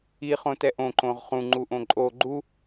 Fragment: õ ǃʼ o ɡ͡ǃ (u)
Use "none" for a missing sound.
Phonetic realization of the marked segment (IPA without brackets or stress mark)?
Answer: u